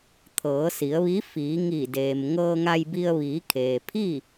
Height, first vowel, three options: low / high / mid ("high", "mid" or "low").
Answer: mid